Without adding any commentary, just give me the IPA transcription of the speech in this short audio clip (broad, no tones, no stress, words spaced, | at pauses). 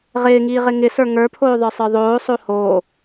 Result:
ʁɪːŋiːʁɪ ŋɪsə˞ ŋə˞pʰoːðˤə˞sˤə˞ ðˤoːsˤo ho